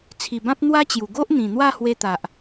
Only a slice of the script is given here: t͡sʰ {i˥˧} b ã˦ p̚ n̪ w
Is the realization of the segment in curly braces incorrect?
yes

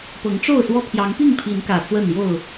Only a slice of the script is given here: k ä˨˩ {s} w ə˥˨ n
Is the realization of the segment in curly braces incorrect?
yes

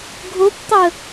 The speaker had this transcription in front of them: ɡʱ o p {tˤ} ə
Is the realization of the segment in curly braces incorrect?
no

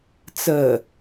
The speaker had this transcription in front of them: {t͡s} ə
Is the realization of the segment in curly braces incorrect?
no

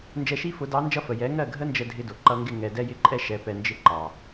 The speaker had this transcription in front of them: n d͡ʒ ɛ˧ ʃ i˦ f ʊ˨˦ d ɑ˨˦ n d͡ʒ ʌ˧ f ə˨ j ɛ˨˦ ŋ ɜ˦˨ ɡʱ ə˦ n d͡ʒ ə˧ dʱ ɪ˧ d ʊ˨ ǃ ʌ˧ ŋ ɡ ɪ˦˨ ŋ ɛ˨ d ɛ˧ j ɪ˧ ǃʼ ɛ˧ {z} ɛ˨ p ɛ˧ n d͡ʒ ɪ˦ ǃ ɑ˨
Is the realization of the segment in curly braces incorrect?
yes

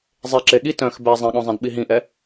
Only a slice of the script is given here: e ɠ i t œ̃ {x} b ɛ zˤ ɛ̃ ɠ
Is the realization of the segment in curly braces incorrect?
no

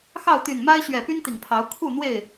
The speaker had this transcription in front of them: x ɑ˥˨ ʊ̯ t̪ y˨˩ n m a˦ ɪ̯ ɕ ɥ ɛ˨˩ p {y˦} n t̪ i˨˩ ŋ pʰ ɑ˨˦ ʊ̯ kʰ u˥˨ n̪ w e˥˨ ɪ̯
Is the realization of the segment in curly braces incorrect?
no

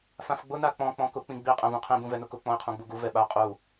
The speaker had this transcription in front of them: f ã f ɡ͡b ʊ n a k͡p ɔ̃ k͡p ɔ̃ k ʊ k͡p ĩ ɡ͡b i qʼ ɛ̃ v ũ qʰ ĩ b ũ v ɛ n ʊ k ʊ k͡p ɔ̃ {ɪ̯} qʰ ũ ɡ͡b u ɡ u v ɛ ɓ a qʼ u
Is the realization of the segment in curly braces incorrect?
no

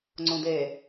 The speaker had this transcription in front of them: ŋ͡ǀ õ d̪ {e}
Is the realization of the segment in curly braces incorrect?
no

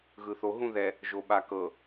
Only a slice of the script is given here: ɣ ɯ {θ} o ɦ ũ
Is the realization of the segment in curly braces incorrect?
no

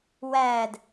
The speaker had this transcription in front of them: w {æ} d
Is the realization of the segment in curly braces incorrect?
no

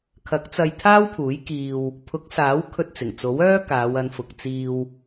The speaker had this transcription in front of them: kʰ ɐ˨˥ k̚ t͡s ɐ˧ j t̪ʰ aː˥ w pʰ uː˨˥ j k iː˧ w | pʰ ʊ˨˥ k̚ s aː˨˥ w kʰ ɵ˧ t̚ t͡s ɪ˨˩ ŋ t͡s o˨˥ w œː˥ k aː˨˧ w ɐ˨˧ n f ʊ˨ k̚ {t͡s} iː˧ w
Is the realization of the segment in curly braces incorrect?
no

